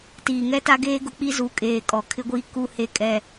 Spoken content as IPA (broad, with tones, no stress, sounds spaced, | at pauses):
t iː˨ ŋ ɛ˦ t a˦ ɡ eː˦ ɡ ʊ˦ k͡p i˦ z u˨˦ kʼ eː˨ kʼ ɔ˨ kʰ ɪ˦ ɡʷ iː˦ k u˦ h e˦ kʼ ɛ˦